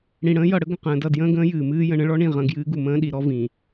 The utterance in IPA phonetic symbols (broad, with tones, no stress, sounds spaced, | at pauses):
ɽ ĩ˨ ɽ ə̃ː˦ j ʌ˨ ɽ ə˦ ɡ ə̃˨ q ə̃ː˨ d ʌ˦˨ d j ə̃ː˦ ɡ ə̃ː˦ j ɨː˨ m ɨː˦ j ə̃˨ ɳ ə̃˦ ɭ ɔ˦ ɳ ĩ˦˨ ʁ ə̃˦˨ ɡ j ɨː˦ ɡ u˨ m ə̃ː˦ ɗ i˨ ɾ ɔ˦ v ĩ˨